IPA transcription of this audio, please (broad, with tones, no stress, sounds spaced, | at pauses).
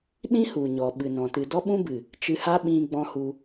ɗ ĩ˦ h u˨ ɲ ɔ˨ ɓ ɨ˨ n ɔ̃˨ t ɨ˨ d ɔ˦ ɓ ũ˦ b ɨ˨ | t͡ʃ ɨ˧ h a˦ ɓ ĩ˧ ɡ͡b ɔ̃˧ h u˧